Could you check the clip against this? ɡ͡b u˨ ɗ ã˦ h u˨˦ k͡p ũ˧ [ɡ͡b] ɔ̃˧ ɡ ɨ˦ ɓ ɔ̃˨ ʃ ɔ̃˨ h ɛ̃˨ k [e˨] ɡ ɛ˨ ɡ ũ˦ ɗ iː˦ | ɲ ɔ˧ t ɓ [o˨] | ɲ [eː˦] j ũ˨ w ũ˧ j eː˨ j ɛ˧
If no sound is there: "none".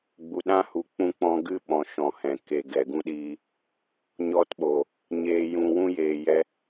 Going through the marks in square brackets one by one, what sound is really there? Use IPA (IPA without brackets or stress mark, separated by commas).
k͡p, e˨, o˨, eː˨